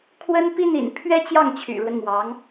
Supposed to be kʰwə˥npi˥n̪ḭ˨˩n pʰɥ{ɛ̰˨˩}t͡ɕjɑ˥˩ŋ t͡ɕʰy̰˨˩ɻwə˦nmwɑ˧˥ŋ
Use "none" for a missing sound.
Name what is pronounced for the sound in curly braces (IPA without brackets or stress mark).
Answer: ɛ˥